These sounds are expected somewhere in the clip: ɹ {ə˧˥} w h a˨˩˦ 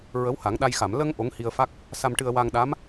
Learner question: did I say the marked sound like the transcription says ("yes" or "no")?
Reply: yes